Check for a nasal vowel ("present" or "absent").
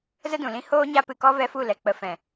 present